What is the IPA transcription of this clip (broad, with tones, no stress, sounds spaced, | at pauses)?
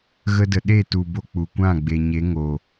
ɣ ə˧ d ə˨ ɗ e˦˨ t u˨ b o˧ k͡p u˨ kʷ ã˦˨ ɡ͡b e˨ ɲ e˨˦ ŋ o˨